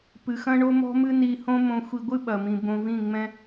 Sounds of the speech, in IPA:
pɨ˨xɐ̃˦ ɳo˦mɔ̤˦mɨ˦ ni˧hõ˦ mõ˧ xʷi˧ɡʷɨ˦ɓɐ˨mĩ˨ bõ˧vĩ˦˨ŋ͡mɛ̃˦

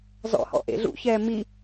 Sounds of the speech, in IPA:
zɔ̰hɔ̰ʔḛ ɮṵçɛː mi

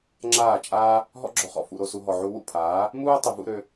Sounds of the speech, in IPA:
ŋ͡ǁaː˦˨t͡ʃʼaː˦ | ɦɔ̰˦ɡ͡ǁɔ˨χɔ̰˨ fṵ˧ɾo˧su˧ ɦɔ˨ʕu˧wṵ˦˨pʰaː˨˦ | muː˦ tˤʏ˨vṵ˧ ɾø˧

